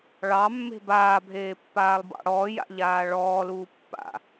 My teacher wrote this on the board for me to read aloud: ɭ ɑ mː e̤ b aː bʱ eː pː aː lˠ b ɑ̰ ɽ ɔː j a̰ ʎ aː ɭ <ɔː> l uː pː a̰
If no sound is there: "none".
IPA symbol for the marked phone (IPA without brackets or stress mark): ɔː